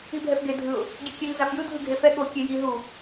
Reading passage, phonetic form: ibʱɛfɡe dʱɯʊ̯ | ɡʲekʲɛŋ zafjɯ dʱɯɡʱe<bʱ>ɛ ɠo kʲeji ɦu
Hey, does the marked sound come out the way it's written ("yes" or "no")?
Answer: no